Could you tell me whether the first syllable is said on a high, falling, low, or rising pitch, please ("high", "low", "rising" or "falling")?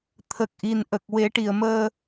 low